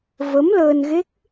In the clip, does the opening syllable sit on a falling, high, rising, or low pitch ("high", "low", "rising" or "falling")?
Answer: rising